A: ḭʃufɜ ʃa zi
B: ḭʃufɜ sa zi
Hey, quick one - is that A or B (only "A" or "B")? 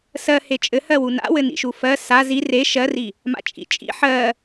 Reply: B